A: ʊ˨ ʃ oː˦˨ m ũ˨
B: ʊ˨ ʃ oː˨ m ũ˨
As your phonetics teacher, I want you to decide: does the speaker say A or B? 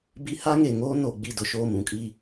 A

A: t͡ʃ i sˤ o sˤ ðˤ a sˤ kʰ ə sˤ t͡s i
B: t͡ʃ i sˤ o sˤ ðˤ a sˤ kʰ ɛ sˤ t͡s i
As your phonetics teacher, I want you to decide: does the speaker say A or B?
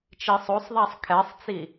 B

